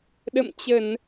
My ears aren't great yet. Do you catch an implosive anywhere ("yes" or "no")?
yes